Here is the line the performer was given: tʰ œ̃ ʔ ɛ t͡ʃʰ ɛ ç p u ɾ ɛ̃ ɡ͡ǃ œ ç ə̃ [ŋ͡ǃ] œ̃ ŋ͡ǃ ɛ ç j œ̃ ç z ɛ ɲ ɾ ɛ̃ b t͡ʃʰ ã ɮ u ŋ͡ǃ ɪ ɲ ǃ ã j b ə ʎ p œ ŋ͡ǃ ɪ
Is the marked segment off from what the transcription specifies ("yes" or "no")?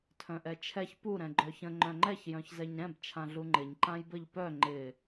no